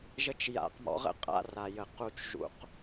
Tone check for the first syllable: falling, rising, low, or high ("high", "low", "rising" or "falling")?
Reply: high